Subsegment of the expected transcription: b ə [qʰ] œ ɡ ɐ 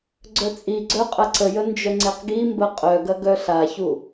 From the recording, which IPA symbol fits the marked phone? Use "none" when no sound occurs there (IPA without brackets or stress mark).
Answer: qʼ